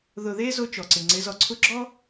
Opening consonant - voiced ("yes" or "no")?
yes